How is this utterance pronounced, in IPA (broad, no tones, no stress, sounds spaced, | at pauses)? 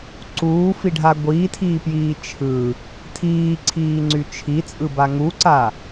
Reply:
ǀ uː f i ɖʱ a ɡʷ iː tʰ iː p j iː t͡ʃʰ ɯ | tʰ iː ǀʰ iː ŋ͡ǀ y t͡ʃʰ i t͡sʼ ɯ b a ŋ u ǀ a